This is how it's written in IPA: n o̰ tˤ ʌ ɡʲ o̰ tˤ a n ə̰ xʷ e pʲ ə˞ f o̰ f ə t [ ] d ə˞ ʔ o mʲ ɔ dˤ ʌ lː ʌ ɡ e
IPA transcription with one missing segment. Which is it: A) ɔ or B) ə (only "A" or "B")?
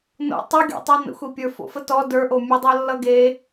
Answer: A